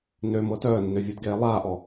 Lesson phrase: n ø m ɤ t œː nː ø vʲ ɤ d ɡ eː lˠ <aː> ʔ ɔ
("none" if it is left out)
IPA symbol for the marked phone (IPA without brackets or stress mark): aː